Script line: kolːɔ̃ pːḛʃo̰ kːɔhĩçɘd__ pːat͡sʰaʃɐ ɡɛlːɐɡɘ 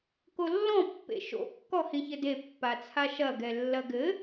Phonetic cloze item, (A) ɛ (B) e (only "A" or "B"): B